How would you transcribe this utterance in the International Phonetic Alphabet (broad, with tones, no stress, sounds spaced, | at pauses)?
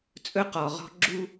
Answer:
t͡sʼ ɵ˥ q ɔ˩ ʁ ɔ̤˥ ɡ͡ǁ u˥